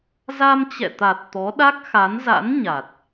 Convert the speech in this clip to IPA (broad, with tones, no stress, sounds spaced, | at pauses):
z a˧ m t͡ɕ ɛ̰˧˨ t̪ a˨˩ t̚ t̪ ɔ˨˦ ɗ a˦˥ k̚ x a˨˦ n z a̰˧˥ n ɲ a˨˩ t̚